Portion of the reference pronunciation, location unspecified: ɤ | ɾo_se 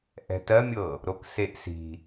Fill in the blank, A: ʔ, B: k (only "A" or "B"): B